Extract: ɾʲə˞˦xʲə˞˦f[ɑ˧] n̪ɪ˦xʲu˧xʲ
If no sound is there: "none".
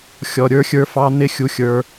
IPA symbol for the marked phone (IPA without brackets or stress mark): ɑ˦